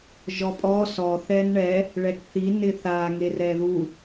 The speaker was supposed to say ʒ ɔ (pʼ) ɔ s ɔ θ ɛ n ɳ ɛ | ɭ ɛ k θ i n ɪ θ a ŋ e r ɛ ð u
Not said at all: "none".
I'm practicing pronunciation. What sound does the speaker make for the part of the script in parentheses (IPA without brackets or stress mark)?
pʼ